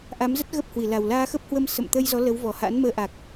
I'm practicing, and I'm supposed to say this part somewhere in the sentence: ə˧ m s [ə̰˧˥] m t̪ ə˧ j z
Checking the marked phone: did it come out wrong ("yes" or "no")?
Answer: yes